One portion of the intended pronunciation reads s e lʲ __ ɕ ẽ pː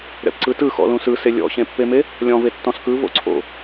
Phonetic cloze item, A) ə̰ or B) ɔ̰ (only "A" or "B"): B